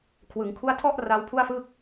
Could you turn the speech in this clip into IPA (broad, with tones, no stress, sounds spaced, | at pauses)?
kʰ w ɯ˩˦ ŋ kʰ u˦˥ a̯ tʰ ɔ˥˩ ʔ r a˦˥ w pʰ u˥˩ a̯ f ɯ˥˩ k̚